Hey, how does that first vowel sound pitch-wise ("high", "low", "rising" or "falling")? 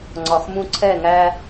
low